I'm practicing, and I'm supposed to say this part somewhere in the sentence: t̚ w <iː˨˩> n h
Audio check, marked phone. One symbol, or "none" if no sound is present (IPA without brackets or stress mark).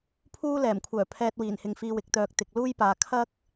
iː˨˩